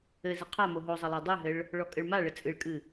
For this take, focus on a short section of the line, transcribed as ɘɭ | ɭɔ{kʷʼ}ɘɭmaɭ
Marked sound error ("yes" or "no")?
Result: yes